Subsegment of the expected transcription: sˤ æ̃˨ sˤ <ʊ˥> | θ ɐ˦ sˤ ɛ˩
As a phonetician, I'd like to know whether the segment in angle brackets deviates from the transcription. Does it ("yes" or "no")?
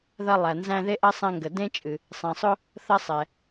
no